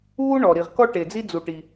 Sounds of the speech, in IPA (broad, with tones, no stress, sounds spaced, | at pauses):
uː˥ ɳ ɔː˩ ɾ i˩ ʁ k ɔ˥ ʈ e˩ d͡z i˥ d͡z u˩ ʈ i˩